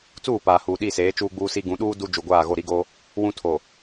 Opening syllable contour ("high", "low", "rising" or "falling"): falling